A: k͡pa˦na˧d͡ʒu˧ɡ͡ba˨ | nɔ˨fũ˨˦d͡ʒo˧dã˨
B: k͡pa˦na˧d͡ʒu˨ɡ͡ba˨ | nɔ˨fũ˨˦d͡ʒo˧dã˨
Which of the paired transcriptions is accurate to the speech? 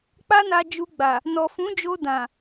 A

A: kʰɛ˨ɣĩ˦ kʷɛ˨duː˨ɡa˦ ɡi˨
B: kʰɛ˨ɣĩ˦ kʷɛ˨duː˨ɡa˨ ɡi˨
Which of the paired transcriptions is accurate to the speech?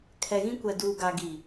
B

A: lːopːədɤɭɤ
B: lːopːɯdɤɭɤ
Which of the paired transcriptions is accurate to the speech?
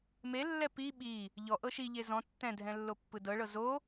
B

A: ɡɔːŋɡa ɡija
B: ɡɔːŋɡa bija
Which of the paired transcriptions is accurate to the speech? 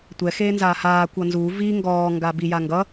B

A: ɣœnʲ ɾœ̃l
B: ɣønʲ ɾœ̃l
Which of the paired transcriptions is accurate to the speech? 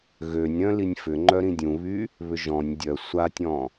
B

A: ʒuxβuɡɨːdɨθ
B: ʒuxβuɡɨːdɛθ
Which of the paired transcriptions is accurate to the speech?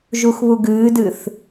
A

